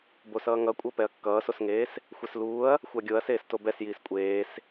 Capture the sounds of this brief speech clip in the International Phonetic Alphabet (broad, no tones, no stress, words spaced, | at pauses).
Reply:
bosʌːŋʌkʷʼʌ pɛɐ̯kːʌːsosŋeːs | xʷɛsluːɐ̯ | xʷaɡʲoɐ̯ seːstobɛsjiːs kʷʼeːs